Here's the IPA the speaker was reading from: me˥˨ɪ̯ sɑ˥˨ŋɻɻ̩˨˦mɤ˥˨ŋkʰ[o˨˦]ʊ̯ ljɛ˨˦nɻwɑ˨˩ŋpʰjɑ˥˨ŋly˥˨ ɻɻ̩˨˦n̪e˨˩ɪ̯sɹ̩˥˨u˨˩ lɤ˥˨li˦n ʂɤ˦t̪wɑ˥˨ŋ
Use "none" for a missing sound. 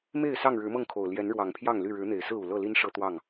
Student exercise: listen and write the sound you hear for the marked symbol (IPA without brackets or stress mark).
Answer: o˨˩